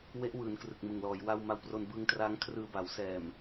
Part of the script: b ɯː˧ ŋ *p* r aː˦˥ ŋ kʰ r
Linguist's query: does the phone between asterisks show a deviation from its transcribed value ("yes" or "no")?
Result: yes